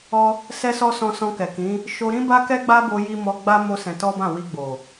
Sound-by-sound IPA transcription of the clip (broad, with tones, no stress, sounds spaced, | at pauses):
ɔ˦ | s ɛ˦ s ɔ˦ s ɔ̃˧ s ɔ̃˧ k ɛ˨ k ĩ˨˦ | ʃ o˧ ɾ ĩ˦ b a˦ k ɛ˦ ɡ͡b a˦ b o˧ j i˧ m ɔ˧ ɡ͡b a˦ m o˦ s ɛ̃˧ t ɔ˦ b ã˦˨ w i˧ ɡ͡b o˨